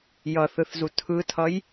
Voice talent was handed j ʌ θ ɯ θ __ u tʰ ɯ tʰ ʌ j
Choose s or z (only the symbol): z